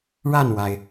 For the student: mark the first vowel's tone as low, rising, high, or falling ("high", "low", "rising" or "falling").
falling